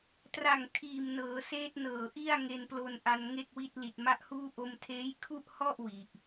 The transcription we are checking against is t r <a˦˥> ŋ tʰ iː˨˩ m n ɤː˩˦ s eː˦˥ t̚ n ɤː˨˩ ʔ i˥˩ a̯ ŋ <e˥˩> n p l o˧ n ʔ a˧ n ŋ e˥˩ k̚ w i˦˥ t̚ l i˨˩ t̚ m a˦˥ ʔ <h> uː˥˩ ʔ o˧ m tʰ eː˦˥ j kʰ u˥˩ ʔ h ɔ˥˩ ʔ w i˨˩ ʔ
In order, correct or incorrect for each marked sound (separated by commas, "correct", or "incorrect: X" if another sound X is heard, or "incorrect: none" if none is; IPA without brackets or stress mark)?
incorrect: a˨˩, incorrect: e˧, correct